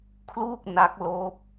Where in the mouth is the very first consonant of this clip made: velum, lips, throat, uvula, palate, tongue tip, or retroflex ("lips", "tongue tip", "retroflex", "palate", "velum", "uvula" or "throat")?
velum